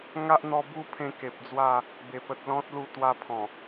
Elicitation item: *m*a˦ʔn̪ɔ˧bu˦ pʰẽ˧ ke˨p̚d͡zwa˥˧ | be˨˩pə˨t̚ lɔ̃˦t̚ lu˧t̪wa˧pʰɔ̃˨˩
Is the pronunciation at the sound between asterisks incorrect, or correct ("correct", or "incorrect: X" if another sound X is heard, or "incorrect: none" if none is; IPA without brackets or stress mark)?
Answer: incorrect: ŋ